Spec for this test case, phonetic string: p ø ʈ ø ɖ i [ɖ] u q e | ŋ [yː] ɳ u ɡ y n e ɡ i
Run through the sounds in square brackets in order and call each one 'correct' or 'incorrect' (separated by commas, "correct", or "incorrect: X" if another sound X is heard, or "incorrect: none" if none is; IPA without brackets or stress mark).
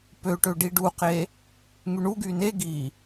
correct, incorrect: y